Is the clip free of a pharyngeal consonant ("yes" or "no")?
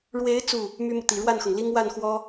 yes